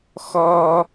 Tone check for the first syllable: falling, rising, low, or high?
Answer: high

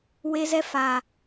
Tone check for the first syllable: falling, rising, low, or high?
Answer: high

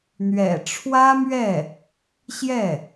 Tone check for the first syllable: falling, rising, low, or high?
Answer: low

